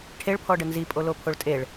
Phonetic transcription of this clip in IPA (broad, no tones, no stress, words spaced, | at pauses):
ʈʰeɭpʰɔɖə nzipʼolopʰoɭ tʼeɭ